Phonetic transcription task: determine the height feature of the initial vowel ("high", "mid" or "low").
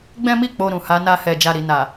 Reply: mid